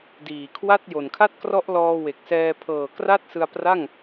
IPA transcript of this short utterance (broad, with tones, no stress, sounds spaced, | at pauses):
d iː˨˩ kʰ w a˥˩ t̚ j o˨˩ n kʰ a˥˩ t̚ k r ɔ˦˥ ʔ l ɔː˧ w e˨˩ k̚ s ɛː˧ pʰ ɤː˨˩ k r a˥˩ t̚ s ɯ˧ a̯ p r a˥˩ ŋ